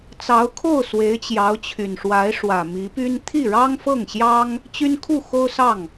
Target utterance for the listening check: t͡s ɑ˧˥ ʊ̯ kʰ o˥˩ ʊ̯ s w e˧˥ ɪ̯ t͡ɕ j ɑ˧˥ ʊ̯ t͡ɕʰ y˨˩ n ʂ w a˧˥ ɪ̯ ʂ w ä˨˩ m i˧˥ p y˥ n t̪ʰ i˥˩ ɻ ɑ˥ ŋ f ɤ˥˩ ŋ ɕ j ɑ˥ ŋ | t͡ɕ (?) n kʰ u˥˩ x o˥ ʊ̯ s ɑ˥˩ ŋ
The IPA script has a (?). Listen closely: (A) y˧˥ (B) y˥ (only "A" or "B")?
B